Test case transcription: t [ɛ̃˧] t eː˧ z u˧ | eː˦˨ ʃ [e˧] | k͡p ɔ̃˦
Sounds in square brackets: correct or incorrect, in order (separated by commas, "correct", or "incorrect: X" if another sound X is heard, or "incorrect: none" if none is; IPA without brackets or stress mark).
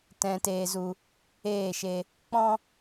correct, correct